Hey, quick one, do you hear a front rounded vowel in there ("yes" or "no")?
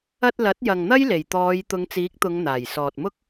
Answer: no